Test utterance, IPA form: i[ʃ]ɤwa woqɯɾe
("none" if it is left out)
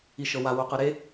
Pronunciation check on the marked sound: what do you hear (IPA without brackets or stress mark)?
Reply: ʃ